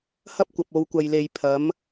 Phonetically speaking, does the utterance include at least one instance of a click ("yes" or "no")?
no